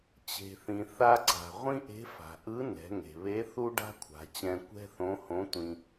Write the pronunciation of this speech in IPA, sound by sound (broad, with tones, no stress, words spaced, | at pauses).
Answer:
t͡ɕe̤˩θĩ˩ θa˧ǀa̤˩ ʁʷĩ˥ʔe̤˧˥fa̤˩ ʔɯ˧˥nɛ̤˩˧ŋe̤˩βe˧˥ θu˥ɖa̤˥kʷʰa̤˩˧ t͡ɕɛ̃˧kʷɛ̤˥θõ˧˥hõ˧˥ tʷĩ˥